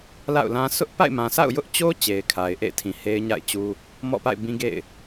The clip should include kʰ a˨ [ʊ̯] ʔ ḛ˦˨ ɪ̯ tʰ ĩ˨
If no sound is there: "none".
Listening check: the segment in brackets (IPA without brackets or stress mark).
ɪ̯